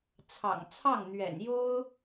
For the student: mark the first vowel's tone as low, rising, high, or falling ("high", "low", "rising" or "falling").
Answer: low